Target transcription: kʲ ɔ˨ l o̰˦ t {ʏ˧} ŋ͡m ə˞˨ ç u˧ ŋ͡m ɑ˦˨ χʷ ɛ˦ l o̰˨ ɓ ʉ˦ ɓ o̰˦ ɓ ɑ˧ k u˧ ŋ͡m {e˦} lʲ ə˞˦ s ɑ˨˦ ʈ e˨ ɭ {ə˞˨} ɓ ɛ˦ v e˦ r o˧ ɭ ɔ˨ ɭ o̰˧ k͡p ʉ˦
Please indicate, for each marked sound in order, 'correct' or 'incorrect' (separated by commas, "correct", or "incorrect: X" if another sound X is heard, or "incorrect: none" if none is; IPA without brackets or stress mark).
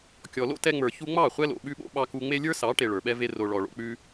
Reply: incorrect: ɛ˧, correct, correct